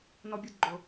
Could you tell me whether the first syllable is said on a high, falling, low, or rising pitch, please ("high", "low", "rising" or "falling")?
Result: high